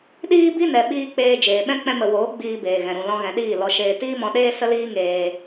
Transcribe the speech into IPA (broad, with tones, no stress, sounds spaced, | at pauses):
ɗ iː˦ b i˦ n ɛ˨ ɓ iː˧ k͡p eː˧ d͡ʒ eː˨ ɓ ɛ̃˦ k͡p ɛ̃˧ m ə˨ w oː˨˦ ɡ͡b iː˧ b eː˨ ɣ ɛ̃˨ ɾ ũ˨ l ɔ̃˧ ɣ ɛ̃˨ ɗ iː˦˨ l ɔ˧ ʃ eː˧ t iː˦ m ɔ̃˧ ɗ eː˦ s ə˦ l iː˦ ŋ eː˧